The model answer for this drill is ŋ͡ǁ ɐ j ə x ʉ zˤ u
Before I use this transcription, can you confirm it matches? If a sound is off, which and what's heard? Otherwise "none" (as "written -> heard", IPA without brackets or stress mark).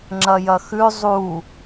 ə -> ɐ